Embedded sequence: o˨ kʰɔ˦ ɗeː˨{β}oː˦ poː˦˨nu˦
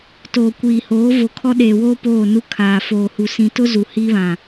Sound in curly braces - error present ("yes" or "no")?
yes